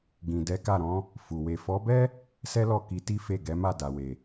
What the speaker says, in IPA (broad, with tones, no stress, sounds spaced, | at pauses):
ɡ ĩ˨ d ɛ˨˦ k a˦˨ ɾ ɔ̃˨˦ | f u˨ w e˨ f ɔ˨˦ b ɛ˦ | s ɛ˦ l ɔ˦˨ k i˧ t i˦ f e˦˨ ɡ ɛ˨˦ m a˦˨ d a˨ w e˨